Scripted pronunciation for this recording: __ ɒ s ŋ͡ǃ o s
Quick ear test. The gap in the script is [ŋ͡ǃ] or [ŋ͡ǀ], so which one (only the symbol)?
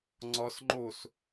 ŋ͡ǀ